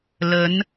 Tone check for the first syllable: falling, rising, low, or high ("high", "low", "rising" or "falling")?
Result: rising